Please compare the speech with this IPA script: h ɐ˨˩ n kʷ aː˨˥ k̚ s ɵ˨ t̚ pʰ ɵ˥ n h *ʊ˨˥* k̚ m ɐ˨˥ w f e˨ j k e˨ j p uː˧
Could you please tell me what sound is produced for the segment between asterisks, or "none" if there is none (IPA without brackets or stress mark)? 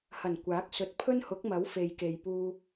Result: ʊ˨˥